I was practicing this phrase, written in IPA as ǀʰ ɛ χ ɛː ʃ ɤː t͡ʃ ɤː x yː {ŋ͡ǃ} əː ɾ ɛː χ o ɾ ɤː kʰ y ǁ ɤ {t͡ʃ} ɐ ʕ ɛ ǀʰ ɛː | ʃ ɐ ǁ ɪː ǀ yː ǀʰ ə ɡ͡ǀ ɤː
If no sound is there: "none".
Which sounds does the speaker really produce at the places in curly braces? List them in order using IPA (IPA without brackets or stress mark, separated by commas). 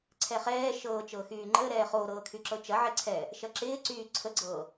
ŋ͡ǃ, t͡ʃ